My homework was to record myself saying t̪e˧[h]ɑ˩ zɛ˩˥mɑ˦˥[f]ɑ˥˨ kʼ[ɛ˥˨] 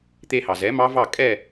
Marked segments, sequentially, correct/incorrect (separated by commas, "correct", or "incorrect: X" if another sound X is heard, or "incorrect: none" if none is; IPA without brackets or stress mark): correct, incorrect: v, correct